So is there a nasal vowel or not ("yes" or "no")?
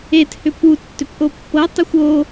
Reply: no